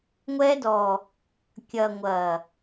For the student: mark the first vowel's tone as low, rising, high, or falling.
high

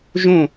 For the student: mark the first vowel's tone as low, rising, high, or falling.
falling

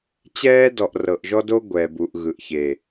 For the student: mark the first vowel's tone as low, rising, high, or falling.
high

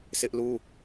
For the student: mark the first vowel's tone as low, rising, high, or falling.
high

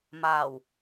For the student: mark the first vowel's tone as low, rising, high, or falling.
low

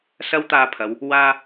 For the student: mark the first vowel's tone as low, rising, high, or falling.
high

